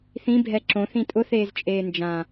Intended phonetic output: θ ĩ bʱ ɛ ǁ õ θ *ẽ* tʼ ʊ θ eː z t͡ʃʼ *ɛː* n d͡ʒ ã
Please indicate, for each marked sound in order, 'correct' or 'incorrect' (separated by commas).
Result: incorrect, incorrect